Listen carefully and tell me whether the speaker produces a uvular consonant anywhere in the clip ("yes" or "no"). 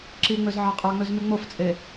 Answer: yes